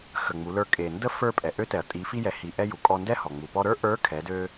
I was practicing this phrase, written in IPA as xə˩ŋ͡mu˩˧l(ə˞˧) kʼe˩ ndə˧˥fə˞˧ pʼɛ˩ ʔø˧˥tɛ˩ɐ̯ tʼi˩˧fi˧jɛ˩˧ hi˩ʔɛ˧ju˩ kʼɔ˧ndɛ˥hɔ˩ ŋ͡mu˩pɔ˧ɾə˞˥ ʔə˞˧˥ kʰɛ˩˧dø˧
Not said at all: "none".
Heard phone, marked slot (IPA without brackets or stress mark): ə˞˧